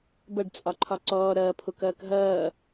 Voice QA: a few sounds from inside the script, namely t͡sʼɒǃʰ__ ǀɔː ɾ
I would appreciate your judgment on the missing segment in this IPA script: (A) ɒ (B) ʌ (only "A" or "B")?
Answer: A